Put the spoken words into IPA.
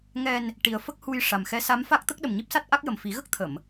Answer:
ŋ ɛ˨˩ n | ʈ i˨˩ ə̯ f ə˦˥ k̚ h u˧ j ʂ a˨˩ m x ɛ˧˥ s a˧˥ m f a˦˥ k̚ t̪ ə˦˥ k̚ ɗ ə˨˩ m ɲ i˦˥ p̚ s a˦˥ t̚ ʔ a˦˥ k̚ j ə˨˩ m f i˨˩˦ ɣ ə˦˥ k̚ t̪ʰ ə˨˩˨ m

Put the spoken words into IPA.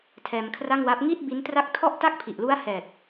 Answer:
tʰ ɛː˧ m kʰ r a˥˩ ŋ w a˦˥ p̚ ŋ i˥˩ t̚ b i˦˥ n t r a˦˥ k̚ tʰ ɔ˥˩ ʔ t a˥˩ k̚ pʰ i˨˩ ʔ l u˦˥ a̯ h ɛː˨˩ t̚

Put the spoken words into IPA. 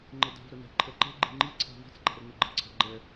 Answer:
ŋ͡ǃ e d a̤ v ɾ ə n ɛ̤ ǃʰ ɛ ǃ e̤ ɡ͡ǃ e̤ ŋ͡ǃ i ǀʰ a̤ v i̤ t͡s ɡ͡ǃ a̤ r n ɯ ɡ͡ǃ ə ǀʰ a̤ ɡ͡ǃ ɛ

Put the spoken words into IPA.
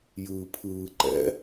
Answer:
j ɯː pʰ ɯː ǃ ɛ̰

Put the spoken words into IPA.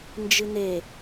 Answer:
n d͡ʒ ɨ n e

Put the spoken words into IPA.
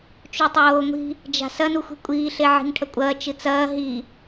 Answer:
t͡ʃ u tˤ oː ŋʷ i̤ | d͡ʒ a̤ s ɐ n u xʷ i̤ kʷʼ iː ɬ e ʕ i̤ ŋ ʈʰ ɐ kʷʼ ɐː t͡ʃ ɨ t͡s ɐː ɦ i

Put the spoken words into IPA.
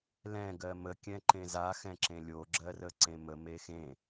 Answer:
l ɛ̃ ɡ ɜ m ə kʲ ɛ̃ ǃ ẽ z a x ɛ̃ ǁ ẽ lʲ o ɡ͡ǁ ɜ r ə ǀ ẽ m ə m e x ẽ

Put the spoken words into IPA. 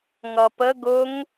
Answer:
ŋ ʌ p ə ɡ ʊ ŋ

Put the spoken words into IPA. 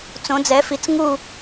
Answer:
t͡s õ˧˥ d͡z ɛ˧˥ f i˧˥ t͡s ŋ u˥˧

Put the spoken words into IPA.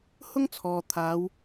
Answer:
h ʊ˥ ŋ t͡sʰ ɔː˨ t̪ʰ aː˨˥ w

